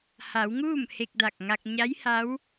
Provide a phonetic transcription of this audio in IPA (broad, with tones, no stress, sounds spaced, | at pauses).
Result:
h a˩˧ w ŋ uː˥˨ m h e˧ k̚ d a˧˩ k̚ ŋ a˧ k̚ ɲ a˧˥ j h a˧˥ w